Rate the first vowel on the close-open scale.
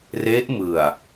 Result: mid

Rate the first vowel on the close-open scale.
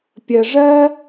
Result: mid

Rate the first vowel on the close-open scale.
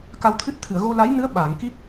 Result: open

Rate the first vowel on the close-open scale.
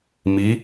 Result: close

